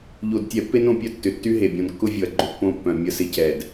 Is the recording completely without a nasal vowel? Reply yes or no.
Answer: no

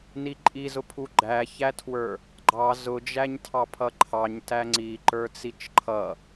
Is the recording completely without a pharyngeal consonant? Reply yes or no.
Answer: yes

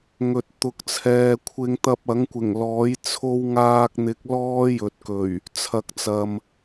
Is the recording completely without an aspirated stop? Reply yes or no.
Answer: no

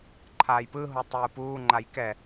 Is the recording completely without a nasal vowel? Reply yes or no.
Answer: yes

